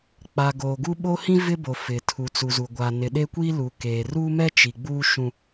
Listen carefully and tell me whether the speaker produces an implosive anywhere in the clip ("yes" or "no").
yes